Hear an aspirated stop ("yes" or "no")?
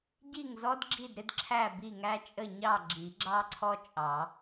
yes